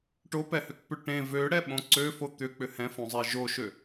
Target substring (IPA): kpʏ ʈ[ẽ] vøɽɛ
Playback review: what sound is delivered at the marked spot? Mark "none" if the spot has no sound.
ẽ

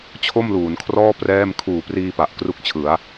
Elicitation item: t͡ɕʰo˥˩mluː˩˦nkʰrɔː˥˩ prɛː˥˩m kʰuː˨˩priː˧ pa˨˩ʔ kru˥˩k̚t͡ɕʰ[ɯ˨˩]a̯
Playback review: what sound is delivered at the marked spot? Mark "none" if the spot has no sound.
ɯ˩˦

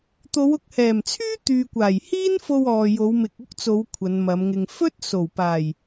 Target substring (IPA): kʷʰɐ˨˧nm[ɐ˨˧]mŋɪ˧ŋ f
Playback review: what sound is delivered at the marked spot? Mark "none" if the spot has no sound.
ɐ˨˧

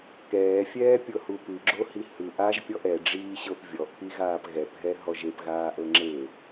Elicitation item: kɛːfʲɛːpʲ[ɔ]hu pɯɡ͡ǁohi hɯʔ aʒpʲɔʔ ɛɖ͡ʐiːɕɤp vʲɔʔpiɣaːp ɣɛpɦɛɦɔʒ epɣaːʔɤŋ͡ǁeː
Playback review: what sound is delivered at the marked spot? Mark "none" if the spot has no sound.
ɤ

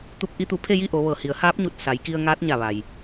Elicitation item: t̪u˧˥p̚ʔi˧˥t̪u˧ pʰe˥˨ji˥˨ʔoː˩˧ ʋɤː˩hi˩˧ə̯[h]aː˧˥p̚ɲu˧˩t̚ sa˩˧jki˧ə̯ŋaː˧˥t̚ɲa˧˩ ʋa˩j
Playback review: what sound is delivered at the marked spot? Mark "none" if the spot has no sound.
h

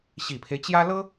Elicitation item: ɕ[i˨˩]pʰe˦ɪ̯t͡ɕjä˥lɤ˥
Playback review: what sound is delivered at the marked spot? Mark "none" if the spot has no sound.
i˨˩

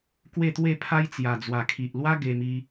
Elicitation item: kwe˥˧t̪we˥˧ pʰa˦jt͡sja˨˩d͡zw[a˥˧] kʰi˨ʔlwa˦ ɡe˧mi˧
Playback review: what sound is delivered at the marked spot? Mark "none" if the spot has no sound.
a˨˩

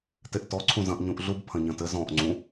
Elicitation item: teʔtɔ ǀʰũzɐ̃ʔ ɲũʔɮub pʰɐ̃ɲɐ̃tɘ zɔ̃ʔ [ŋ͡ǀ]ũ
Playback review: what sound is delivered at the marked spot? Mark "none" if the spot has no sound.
ŋ͡ǀ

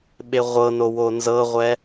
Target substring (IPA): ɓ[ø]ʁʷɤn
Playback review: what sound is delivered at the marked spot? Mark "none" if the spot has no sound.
e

